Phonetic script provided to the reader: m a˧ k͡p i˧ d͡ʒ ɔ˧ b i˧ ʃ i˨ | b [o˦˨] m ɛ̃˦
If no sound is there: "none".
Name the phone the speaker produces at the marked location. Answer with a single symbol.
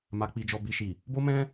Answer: o˦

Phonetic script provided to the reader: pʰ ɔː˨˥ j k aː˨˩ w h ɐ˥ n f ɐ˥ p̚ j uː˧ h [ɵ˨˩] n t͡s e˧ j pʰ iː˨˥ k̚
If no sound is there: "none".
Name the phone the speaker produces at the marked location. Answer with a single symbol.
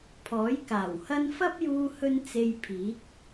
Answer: ɵ˧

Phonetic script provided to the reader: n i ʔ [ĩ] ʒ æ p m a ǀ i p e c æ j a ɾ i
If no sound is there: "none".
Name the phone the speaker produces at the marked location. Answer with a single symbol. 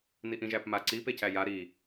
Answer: ĩ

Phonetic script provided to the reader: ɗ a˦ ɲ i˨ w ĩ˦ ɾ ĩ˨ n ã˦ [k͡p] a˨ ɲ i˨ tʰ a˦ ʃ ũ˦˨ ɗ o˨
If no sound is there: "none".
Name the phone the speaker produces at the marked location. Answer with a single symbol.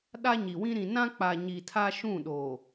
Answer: k͡p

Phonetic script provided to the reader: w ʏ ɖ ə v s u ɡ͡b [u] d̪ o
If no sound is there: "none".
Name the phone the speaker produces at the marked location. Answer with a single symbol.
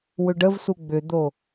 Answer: ʏ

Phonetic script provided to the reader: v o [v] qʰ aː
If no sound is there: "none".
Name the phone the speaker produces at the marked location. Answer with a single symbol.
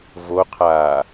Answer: none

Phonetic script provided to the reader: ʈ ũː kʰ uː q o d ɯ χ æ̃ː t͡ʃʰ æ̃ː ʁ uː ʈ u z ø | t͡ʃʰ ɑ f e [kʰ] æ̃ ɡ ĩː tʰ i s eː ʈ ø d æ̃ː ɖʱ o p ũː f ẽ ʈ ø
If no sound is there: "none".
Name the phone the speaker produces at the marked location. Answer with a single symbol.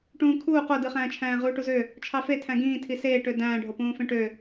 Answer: tʰ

